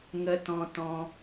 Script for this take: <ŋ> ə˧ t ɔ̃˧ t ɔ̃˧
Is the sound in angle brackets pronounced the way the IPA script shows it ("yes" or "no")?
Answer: yes